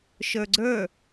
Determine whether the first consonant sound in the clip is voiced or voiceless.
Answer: voiceless